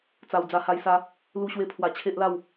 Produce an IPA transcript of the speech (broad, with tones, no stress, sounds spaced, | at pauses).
t͡s a˨˩ w d͡z a˧ h a˧ j s a˦ | l u˧ ɕ w e˧ pʰ w a˨˩ t͡ɕʰ e˦ ʔ l a˥˧ w